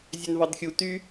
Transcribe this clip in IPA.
zʲ ø n v ɑ d xʲ u t y

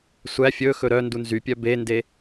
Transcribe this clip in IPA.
sʷ æ fʲ ɵ x ɵ ɾ œ n d u n z y pʲ œ b e n d e

